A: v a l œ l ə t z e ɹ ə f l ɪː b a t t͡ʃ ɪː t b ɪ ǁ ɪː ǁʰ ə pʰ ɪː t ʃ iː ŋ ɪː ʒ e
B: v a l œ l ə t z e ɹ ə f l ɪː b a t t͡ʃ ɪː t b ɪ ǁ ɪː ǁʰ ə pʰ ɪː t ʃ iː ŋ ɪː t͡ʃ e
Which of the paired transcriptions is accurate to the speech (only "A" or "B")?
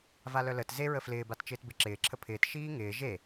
A